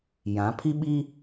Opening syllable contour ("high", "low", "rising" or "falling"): rising